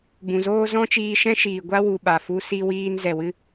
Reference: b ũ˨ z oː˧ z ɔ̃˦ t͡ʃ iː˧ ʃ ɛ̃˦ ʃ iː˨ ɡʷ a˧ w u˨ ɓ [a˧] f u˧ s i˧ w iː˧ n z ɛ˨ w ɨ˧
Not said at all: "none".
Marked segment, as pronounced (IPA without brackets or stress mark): a˨